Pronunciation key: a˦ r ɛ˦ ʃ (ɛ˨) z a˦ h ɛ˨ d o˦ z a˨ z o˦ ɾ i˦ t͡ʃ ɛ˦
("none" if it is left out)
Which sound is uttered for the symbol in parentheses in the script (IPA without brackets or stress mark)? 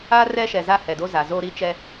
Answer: ɛ˨